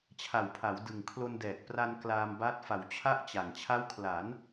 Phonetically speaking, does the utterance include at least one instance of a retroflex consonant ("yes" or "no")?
no